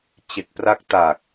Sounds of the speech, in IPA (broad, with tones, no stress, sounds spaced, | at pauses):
t͡ɕ e˨˩ k̚ p r a˦˥ k̚ t aː˨˩ k̚